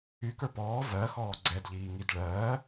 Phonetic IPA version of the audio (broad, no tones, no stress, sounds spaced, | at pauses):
y k ə˞ p ɔː v ɜ x ɔː ɡ͡ǀ ɛ d ʎ iː ŋ i d ɭ ɜː